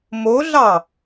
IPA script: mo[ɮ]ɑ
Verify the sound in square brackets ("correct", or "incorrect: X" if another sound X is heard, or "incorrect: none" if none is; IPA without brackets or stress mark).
correct